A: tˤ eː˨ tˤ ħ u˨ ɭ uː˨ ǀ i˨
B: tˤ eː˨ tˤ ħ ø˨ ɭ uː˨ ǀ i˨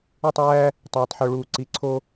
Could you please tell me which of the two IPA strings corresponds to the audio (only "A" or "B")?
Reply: B